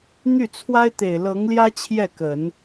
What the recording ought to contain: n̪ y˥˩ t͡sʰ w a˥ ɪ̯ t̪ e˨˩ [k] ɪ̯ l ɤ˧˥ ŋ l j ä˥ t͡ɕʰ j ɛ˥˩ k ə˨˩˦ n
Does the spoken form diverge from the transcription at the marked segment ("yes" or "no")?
yes